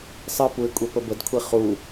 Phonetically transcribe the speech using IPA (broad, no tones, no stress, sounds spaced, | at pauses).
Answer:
sˤ ɨ p u ɪ̯ kʷʼ e p ə b ə d kʷʰ i χ u